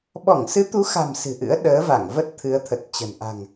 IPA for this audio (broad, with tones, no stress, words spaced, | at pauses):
ɓɔ˧˩ŋsɨ˨˦t̪u˨˦xa̤˨˩m sɨ̤˨˩ʔɨ̰˧˥ə̯ ɗəː˨˦va˧˩ŋvə˦˥t̚ t̪ʰɨ˨˦ə̯t̪ʰə˨˩t̚t͡ɕə̤˨˩n ʔa̤˨˩ŋ